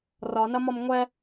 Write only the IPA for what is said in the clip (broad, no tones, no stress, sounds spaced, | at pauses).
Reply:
r ɒ n ɐ m ɒ m ŋʷ ɛ